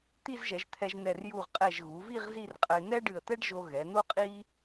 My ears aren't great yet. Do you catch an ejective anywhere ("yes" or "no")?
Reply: yes